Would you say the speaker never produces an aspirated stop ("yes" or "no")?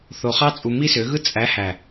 yes